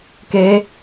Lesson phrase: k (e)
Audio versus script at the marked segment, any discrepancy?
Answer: no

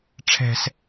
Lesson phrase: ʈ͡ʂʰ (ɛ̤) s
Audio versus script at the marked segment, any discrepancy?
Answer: no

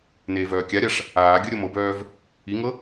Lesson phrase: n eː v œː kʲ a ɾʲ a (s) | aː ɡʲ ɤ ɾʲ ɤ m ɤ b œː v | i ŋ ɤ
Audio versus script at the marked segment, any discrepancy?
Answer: yes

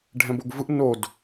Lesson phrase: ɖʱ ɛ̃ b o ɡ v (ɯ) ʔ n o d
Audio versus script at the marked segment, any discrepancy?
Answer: no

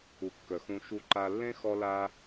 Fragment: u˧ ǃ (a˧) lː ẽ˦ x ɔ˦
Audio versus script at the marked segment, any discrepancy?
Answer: no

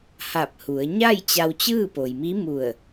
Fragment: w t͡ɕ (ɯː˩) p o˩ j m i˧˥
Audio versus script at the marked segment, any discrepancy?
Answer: yes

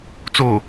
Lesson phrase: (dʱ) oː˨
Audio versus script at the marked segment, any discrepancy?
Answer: yes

